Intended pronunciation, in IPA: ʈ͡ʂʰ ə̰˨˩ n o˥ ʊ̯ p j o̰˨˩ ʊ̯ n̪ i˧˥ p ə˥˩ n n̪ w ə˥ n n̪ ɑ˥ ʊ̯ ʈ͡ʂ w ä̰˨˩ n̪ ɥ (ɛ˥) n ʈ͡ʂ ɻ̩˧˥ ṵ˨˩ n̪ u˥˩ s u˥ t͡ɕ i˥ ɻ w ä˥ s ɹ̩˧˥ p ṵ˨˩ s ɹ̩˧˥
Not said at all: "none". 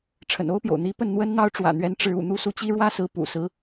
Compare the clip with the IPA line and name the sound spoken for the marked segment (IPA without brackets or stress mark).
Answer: ɛ˧˥